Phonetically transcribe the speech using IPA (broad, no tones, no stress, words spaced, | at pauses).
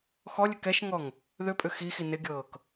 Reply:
xɔlʲɘ kɛʃŋɔŋ | ðʏpʼʏ xixi nɪɡʲɤːk